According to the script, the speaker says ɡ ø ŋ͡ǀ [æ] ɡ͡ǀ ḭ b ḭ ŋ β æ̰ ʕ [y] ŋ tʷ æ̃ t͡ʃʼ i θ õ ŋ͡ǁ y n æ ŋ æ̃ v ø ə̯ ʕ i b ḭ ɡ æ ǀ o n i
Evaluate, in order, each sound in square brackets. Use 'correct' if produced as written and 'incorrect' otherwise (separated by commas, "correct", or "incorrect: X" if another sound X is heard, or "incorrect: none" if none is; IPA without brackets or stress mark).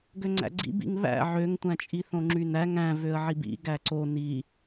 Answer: incorrect: æ̰, incorrect: ø